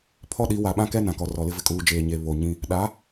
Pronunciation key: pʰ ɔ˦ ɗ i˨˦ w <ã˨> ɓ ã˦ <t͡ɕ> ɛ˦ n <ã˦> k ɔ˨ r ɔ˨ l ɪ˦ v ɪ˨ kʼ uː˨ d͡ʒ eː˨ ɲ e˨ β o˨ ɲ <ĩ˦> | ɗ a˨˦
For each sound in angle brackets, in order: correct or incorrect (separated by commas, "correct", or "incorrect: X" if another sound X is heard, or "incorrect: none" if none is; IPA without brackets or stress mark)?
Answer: incorrect: a˨, incorrect: k, incorrect: ã˨, correct